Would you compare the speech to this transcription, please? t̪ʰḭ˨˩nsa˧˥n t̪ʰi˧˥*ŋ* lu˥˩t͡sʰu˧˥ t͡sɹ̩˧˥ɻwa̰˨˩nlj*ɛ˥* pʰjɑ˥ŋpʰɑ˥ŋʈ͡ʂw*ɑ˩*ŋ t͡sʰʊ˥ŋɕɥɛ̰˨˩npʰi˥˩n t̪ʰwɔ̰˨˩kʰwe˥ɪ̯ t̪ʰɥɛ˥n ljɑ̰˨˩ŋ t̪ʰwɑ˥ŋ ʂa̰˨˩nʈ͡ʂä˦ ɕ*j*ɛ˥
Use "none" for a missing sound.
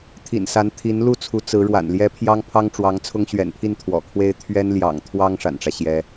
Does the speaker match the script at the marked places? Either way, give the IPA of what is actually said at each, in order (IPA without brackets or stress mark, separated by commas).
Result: n, ɛ˥, ɑ˧˥, j